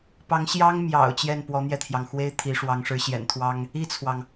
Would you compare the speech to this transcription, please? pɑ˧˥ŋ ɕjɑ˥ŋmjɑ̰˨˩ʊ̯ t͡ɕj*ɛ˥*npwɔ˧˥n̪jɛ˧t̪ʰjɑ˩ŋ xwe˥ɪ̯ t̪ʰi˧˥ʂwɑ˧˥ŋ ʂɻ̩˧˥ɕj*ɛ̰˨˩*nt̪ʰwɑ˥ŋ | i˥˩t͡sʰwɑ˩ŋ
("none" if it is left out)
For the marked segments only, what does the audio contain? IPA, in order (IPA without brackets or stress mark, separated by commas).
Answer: ɛ˥˩, ɛ̰˨˩